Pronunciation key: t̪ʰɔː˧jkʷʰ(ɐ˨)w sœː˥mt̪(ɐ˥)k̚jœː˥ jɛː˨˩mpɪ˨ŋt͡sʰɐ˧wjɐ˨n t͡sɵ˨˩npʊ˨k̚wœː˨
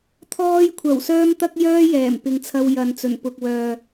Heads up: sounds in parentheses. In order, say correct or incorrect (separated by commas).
incorrect, correct